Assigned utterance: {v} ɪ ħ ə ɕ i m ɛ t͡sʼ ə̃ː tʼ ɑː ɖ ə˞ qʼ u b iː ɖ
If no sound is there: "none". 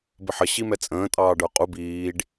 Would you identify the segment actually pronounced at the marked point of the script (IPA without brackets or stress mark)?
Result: b